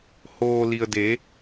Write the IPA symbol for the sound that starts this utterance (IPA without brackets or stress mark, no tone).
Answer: h